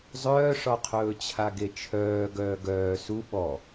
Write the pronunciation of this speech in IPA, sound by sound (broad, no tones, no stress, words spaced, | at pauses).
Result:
zˤœːʂɒqʰɵː t͡ɕʰaɡet͡ʃʰœː ɡœːɡœː su ɓɔ